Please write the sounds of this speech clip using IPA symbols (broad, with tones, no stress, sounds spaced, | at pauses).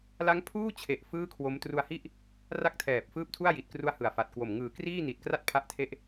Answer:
l a˦˥ ŋ pʰ uː˥˩ t͡ɕʰ e˨˩ ʔ f ɯː˥˩ kʰ w o˦˥ m t r u˧ a̯ h i˥˩ ʔ | r a˥˩ k̚ tʰ ɛː˨˩ p̚ f ɯː˥˩ p̚ tʰ u˥˩ a̯ j i˨˩ t̚ k r u˧ a̯ h ɯ˨˩ a̯ f a˨˩ t̚ k w o˨˩ m ŋ ɯː˩˦ k r iː˥˩ n i˨˩ t̚ k r a˥˩ t̚ pʰ a˦˥ ʔ tʰ e˦˥ ʔ